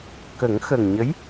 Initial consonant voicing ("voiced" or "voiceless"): voiceless